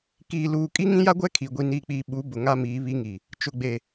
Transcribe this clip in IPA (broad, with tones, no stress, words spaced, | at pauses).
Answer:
kiː˨luː˨ kʼi˦ŋĩ˦ja˦ɡʷɛ˦ kʰi˨ ɡʷi˨niː˨k͡piː˨ ɓu˨˦ bʊ˨ŋa˦miː˨˦ βi˦ŋi˨ | t͡ʃʊ˨ɡ͡be˨